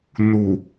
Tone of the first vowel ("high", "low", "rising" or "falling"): low